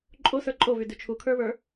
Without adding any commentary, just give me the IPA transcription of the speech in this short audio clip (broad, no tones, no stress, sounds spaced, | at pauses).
ǃʼ o s ə˞ ǃʼ o v y d y t͡ʃʰ u kʰ ə˞ β ə˞